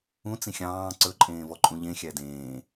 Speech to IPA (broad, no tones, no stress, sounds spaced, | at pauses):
ũ t͡s ĩ xʲ ɑ̃ː ǀ ɵ ǃʼ ẽː v ɔ ǃʼ ũ ʎ ẽ xʲ æ d ẽː